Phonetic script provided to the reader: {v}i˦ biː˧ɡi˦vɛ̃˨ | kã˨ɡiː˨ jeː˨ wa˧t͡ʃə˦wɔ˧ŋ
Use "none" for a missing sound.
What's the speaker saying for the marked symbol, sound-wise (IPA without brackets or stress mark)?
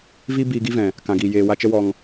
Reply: v